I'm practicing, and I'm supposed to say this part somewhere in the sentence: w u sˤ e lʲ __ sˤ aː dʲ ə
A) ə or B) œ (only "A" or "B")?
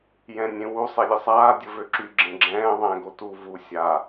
A